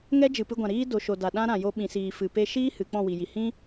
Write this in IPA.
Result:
ŋɛ˦ d͡ʒɨ˨pɨ˧ɡʷã˨ɾiː˦ do˨ʃo˨ da˨ɗã˦ɾã˨ jo˧ɓĩ˨siː˨fɨ˨ pe˦ ʃiː˦ hɨ˨˦ k͡pɔ̃˦˨wi˨ji˨ hĩ˦

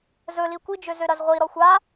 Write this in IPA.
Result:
zɵli kʷid͡ʒø zøɾɐzʁʷi ɾɔxʷa

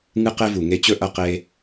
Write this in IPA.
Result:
ŋɨ˧qe˧vu˨ ŋe˧t͡ɕɵ˦ ʔɐ˧qe˧

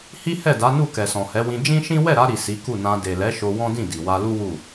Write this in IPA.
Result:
hi˦hɛ˦˨da˨˦nu˦˨ kɛ˨sɔ̃˨hɛ˨˦wĩ˧ d͡ʒĩ˦ʃĩ˦ wɛ˦˨ɾa˧ɾi˨ si˨˦ku˦˨nã˧ de˨lɛ˨˦ ʃo˧wɔ̃˦dĩ˦˨ di˨wa˧lu˦ wu˦˨

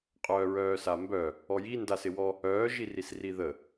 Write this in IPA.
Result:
qʼœːɹœːsambœ | ɔji ndasɪwɔ | œː ʒirisriðə

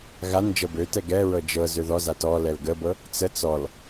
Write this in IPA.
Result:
ɣan d͡ʒɤbøtɛɡ ɛɹɤ d͡ʒɤ zøðɔza tɔlɛl ɡəbɤ | t͡sə t͡sɔl

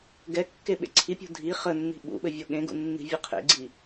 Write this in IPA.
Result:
ɡɛkːe ɓḛǀʰipʲṳ dʱi χənːi̤ ɓṵɓɘ vʲoɠẽɡṵ nːi̤vʲɘqʰḛɡ͡ǀi

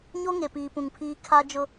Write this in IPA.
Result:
ɲo˦ ŋe˨piː˨ pũ˨ŋpʰiː˦ kʰa˦d͡ʒʊ˦

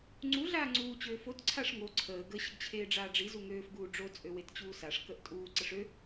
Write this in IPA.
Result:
ŋ͡ǀu ɮaːŋ͡ǀuː t͡ɕøːfot ǀʰaʂŋo ǀʰəː ɡə ɕəɡt͡ɕʰeːɖ͡ʐaːɖ͡ʐi zuŋøːf ɡuːɖ͡ʐo t͡sʼøwett͡ɕuːsaʂ kəʔtʼuː ǀəʂø

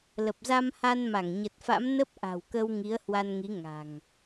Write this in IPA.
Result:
lə˨˩p̚za˧mha˧nma˧˩ŋ ɲə˨˩t̚fa̰˧˥m nə˦˥p̚ʔa̤˨˩wkə˧w ŋi˨˦ə̯hwa˧nŋi˨˦ ŋa̤˨˩ŋ

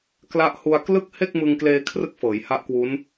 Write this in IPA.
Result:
kla˦˥ʔ hu˧a̯klɯ˥˩k̚ he˥˩k̚mɯ˧ŋkleː˧ kʰrɯ˥˩k̚fɤː˩˦jha˦˥ʔkwu˦˥n

